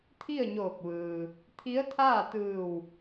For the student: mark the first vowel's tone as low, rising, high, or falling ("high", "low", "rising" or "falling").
falling